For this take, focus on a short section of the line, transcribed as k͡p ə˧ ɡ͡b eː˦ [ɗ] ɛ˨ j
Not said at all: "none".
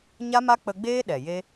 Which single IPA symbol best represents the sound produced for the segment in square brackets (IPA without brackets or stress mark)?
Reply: ɗ